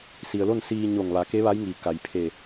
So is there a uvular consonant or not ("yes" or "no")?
no